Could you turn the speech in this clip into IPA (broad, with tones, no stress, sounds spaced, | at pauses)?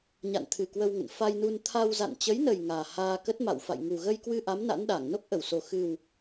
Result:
ɲ a̰˧˨ n t̪ʰ ɨ˨˩ k w ə˧ w ŋ ə̰˧˨ n f a˧ j n u˧ n t̪ʰ a˧ w z a̰˧˨ n t͡ɕ ə˨˦ j n ə˨˩ j ŋ aː˨˩ h aː˧ k ə˦˥ t̚ m a̰˧˨ w f a̰˧˨ j ŋ u˨˩ ɣ ə˧ j k w ɨ˧ ʔ a˨˦ m n a̰˧˥ n ɗ a˧˩ ŋ n o˦˥ k̚ ʔ ə˧˩ w s o˨˩ x ɨ˨˩ w